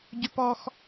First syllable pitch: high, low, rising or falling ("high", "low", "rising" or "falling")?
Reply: high